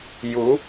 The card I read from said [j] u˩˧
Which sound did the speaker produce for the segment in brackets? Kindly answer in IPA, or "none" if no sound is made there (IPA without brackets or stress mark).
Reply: j